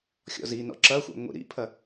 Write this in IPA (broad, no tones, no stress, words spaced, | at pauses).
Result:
xʲɔ̰zinɔ̰ ǁɐxʷa̰ ŋʷḭɾḭpʰɐ